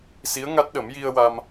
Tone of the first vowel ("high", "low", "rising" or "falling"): rising